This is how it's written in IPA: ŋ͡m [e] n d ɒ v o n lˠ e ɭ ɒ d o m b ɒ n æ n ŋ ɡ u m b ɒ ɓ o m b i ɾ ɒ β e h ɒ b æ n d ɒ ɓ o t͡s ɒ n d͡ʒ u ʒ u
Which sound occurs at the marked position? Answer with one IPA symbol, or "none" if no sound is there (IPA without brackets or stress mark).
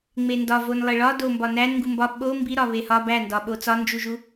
e